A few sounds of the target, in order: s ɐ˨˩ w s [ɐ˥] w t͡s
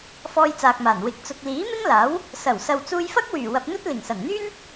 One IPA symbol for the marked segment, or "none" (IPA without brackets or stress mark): ɐ˨